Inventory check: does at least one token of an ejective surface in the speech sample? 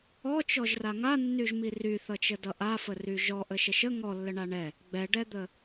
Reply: no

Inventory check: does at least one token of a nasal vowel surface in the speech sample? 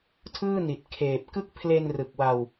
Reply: no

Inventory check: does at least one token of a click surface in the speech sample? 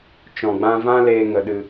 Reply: no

